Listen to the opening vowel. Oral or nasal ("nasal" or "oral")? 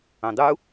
nasal